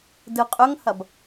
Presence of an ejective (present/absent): present